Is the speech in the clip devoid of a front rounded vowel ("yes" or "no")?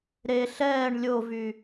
no